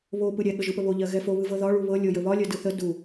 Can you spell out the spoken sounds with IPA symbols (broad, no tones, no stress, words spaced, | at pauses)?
βo pɯɾʲɛ ɠəʒɯpəβo ʎɜɣɛfo βɯvɤðɒ ɭuβɤ lʲɤjəβɒ lʲɜdɯθə du